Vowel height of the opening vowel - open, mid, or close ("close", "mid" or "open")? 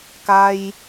open